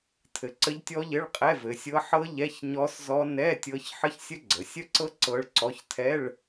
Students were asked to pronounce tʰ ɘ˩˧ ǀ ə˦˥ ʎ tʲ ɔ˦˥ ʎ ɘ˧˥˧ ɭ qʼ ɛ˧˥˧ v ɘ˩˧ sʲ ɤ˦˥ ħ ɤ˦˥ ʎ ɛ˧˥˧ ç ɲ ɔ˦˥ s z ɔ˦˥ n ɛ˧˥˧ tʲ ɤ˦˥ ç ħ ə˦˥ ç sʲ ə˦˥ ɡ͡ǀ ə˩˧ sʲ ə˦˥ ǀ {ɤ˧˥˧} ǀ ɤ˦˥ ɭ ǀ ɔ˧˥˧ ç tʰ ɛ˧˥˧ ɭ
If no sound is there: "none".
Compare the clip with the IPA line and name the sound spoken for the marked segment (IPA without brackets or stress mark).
ɤ˦˥